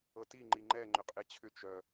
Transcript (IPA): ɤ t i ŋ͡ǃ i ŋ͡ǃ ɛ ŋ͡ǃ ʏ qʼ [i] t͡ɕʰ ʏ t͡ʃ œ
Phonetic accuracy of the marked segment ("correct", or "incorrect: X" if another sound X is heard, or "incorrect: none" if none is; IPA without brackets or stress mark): incorrect: e